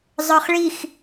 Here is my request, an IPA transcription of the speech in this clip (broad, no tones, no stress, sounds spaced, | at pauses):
zˤ ə˞ χ ɭ i x